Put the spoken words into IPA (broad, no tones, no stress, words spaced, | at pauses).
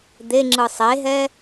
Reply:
d̪eŋ͡ǁɯ sˤeɦɛ